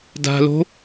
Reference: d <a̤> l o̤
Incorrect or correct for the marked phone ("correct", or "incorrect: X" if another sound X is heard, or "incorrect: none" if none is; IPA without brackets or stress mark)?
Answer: correct